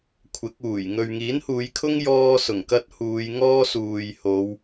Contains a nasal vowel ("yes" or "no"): no